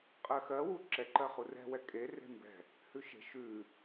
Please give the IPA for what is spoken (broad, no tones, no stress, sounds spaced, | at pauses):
qʼ ɜ x ɜ w u ǁ ɛ ǃ ɜ χ u r ɛ̤ w ɛ kʼ e r e̤ m b ɛ̤ | h ʉ ʃ e̤ ʃ ʉ